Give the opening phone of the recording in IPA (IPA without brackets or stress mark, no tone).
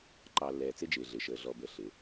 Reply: ǃ